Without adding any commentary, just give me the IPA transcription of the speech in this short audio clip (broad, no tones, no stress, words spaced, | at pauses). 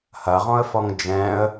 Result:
hɐʁɔ̃ə̯fɔŋ d͡ʒɛ̃ə̯